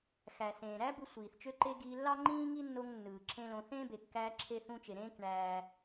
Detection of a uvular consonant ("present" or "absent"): absent